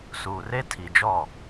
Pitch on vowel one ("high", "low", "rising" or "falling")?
low